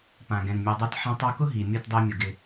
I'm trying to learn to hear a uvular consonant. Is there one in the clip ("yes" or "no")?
no